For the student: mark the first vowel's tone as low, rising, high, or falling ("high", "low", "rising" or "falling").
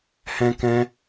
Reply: high